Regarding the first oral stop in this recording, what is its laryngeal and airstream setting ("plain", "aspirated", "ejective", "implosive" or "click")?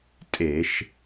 ejective